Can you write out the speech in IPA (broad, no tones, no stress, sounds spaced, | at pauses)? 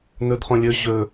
n ɵ d χ õ lʲ ɵ ʑ ɵ